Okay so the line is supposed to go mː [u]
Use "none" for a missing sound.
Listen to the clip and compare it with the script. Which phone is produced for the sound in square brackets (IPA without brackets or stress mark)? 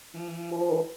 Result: o